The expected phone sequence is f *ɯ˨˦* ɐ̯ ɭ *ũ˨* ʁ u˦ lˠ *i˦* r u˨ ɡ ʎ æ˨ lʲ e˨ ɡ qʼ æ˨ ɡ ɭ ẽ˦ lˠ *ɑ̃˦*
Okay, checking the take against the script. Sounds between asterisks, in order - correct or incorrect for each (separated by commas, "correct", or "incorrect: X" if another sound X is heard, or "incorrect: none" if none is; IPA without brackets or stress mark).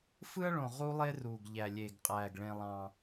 incorrect: ɯ˦, incorrect: õ˨, incorrect: e˦, correct